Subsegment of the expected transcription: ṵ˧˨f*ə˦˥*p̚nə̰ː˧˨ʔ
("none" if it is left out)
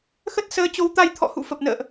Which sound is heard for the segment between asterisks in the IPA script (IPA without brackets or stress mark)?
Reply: ə˨˩